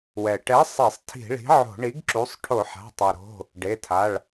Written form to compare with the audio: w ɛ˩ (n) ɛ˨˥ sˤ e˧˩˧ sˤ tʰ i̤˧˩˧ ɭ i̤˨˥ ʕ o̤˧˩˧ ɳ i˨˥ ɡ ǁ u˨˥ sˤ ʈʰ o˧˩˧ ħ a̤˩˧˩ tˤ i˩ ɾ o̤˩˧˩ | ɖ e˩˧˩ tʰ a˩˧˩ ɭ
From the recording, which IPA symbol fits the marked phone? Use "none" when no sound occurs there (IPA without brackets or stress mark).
ʈ